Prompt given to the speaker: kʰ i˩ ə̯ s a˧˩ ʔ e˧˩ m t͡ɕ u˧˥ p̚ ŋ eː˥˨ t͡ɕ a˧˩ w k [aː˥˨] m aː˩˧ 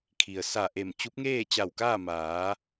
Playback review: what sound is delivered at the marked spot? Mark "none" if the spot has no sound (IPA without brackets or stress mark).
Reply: aː˥˨